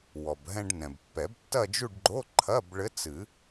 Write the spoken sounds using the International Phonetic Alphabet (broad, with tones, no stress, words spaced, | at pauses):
wɔ˩bɦɛ̃˧ɖ nɛ̃˩bpːɛ˨˩˦btːɐ˥˧d͡ʒu˥˧ɖ ɡ͡ǃo˧˥˧ǃʰɐ˧˥˧bɭɘ˧˥ t͡sɨ˨˩˦